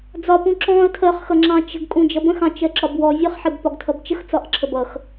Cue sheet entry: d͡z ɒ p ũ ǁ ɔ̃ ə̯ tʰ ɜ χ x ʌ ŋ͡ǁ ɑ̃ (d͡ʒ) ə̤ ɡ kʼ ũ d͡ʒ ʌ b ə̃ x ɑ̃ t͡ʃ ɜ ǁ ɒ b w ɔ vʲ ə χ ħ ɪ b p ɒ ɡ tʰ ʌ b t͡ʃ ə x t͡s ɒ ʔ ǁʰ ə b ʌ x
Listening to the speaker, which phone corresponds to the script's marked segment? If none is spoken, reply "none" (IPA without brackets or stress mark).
t͡ʃ